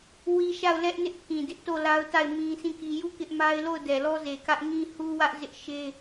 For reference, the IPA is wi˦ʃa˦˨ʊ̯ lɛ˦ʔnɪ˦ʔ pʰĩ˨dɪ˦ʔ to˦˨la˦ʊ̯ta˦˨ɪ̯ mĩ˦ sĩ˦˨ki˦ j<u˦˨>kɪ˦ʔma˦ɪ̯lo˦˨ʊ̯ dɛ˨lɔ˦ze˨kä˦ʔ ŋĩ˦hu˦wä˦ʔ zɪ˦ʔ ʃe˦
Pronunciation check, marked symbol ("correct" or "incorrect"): correct